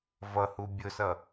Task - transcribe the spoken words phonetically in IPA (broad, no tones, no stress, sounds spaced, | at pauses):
v ʌ h u bʲ ʊ s ʌ